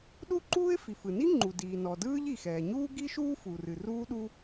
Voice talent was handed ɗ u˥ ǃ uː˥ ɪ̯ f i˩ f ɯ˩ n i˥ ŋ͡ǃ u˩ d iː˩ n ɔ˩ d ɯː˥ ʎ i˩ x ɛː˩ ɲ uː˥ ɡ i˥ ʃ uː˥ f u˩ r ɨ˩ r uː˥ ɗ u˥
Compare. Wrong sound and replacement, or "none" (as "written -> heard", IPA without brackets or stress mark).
none